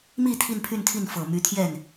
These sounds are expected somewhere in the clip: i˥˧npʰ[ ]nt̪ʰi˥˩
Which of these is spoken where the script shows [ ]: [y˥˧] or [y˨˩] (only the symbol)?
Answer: y˥˧